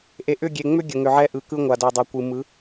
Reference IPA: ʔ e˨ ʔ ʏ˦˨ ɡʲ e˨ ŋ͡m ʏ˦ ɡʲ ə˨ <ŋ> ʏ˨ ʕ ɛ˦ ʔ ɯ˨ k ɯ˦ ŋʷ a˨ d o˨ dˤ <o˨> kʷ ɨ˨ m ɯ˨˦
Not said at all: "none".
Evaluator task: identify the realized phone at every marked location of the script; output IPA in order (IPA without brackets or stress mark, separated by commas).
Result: ŋ, o˨